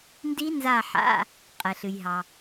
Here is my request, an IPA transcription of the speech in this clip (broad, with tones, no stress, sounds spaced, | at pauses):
n d i˦˥ n z a˦˨ ħ a̰˧˥˧ | qʼ ɛ˨ ɬ ɨ˨ j ɦ ɑ˨